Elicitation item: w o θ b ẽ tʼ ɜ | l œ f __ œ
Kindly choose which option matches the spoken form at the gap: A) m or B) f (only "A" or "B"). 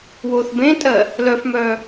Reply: A